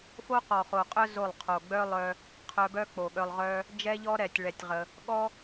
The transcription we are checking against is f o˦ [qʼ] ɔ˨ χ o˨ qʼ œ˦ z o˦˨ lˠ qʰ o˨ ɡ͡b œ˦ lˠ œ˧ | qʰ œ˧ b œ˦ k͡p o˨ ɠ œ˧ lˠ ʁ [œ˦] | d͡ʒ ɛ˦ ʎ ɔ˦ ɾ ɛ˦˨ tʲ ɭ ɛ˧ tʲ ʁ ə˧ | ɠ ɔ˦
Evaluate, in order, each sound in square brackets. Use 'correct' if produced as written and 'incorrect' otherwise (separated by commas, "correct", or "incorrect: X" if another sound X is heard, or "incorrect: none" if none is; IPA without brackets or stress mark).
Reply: incorrect: q, correct